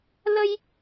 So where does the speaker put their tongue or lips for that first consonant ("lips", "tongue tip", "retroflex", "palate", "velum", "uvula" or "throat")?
tongue tip